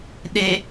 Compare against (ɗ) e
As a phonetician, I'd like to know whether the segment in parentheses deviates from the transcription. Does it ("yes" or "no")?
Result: no